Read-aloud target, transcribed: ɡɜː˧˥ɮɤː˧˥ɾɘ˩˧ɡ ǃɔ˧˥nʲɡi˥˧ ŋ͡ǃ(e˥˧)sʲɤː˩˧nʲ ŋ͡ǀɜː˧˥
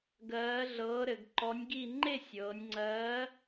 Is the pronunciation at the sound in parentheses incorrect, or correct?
correct